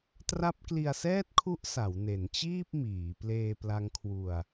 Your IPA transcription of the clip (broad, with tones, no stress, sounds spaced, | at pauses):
t r a˦˥ p̚ k l i˧ a̯ s ɛː˥˩ t̚ kʰ u˦˥ ʔ s a˩˦ w n e˩˦ n t͡ɕ iː˥˩ p̚ m iː˩˦ p l eː˧ p l a˦˥ ŋ kʰ w u˧ a̯